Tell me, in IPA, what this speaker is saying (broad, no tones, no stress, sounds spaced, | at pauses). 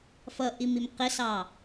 f ʌ ʔ i m i m q ɪ s ɑ